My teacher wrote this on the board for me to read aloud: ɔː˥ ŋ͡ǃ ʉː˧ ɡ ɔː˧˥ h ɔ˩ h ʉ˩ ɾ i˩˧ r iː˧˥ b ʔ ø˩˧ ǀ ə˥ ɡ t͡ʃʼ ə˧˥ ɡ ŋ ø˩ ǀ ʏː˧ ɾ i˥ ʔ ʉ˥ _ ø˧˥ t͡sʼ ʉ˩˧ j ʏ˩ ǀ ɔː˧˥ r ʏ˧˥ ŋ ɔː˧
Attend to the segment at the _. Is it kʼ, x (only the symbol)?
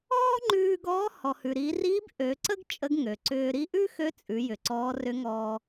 x